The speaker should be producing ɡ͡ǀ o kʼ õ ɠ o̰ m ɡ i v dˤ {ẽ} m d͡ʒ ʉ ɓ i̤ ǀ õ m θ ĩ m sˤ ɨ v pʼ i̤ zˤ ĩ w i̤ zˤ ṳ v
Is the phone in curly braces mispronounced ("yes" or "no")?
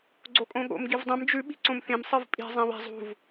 no